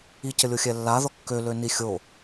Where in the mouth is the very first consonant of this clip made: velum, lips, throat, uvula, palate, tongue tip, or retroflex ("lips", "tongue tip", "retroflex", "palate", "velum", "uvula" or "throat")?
palate